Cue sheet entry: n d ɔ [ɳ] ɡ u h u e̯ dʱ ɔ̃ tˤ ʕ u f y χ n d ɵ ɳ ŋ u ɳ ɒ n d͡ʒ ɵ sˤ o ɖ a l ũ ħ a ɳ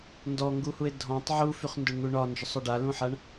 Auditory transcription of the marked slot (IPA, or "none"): ŋ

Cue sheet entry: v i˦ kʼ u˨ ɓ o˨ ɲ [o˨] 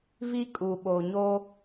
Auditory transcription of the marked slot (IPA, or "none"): o˦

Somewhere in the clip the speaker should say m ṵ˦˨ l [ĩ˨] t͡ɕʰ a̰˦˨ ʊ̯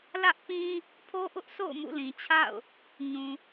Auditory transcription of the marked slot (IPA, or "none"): ĩ˨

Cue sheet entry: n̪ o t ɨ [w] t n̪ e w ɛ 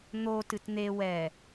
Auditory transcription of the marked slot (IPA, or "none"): none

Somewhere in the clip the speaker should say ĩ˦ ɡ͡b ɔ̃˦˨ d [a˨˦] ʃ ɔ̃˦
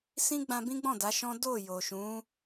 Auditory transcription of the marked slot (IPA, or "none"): a˨˦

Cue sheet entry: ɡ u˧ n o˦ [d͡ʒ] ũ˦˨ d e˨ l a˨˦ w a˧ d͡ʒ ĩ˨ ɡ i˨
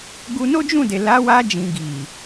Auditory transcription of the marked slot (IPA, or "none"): d͡ʒ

